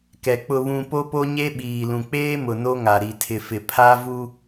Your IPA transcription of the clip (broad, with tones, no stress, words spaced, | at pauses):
kɛ˨ k͡pʊ˨βũ˨ po˦po˦ɲe˦ ɓiː˨lũ˨k͡peː˦mʊ˨ no˦ŋa˨ ɾi˨tʰɪ˨fɪ˨pʰa˦ vu˦